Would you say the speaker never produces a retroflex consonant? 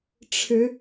no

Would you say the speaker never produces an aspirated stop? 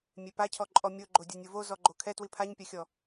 no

